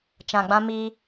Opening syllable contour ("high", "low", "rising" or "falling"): low